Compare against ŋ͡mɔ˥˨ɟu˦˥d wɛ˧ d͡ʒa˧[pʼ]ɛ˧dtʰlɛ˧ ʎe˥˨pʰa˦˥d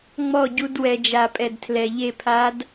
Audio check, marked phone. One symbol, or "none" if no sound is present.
pʼ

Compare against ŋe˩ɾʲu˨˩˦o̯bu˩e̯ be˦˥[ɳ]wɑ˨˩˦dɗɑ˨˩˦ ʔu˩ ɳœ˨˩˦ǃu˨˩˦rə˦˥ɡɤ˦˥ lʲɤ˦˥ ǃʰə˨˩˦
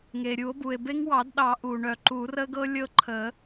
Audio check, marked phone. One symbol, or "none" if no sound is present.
ŋ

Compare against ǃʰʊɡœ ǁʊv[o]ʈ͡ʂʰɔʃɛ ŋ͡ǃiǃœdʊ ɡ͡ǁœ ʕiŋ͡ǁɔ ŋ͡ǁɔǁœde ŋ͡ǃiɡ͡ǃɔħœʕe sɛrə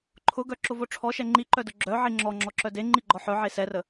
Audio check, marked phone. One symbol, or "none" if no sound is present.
o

